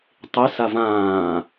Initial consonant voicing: voiceless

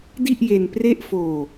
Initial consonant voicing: voiced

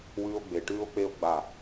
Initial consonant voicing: voiced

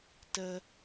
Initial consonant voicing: voiceless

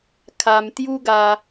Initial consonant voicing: voiceless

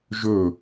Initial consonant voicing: voiced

